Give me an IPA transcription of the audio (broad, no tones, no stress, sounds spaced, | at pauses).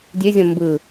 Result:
dʲ ø zʲ ɔ̃ m b ɯ